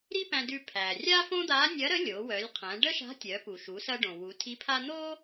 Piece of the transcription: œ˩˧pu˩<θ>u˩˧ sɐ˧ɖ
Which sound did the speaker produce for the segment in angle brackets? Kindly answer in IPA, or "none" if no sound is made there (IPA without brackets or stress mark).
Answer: ʃ